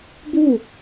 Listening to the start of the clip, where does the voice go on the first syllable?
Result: falling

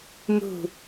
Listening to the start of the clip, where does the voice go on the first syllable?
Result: falling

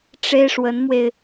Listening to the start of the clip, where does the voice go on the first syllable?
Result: high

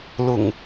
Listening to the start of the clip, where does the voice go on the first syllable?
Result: low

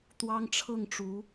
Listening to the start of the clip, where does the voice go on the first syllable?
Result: high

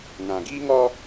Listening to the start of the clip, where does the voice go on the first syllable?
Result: low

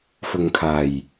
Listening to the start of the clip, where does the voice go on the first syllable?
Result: low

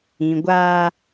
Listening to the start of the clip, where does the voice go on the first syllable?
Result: low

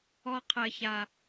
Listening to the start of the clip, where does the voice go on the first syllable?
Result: high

